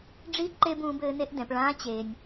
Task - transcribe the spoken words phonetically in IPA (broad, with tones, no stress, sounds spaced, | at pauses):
ɖ͡ʐ i˧˥ ǃ e˧ b ũː˩˧ b ɘː˩˧ n e˧ ʔ d ɛ̃˩˧ p ɭ ãː˧˥ t͡ɕ e˩ nʲ